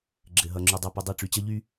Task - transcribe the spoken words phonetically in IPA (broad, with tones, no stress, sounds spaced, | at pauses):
ɡ͡ǁ ɘ˨ ɦ ʌ˨ ŋ͡ǁ y˨ dˤ ʌ˦˨ p ɘ˦ dˤ i˦˨ ʈ͡ʂ y˨ t͡ɕ ʌ˦ ʎ y˦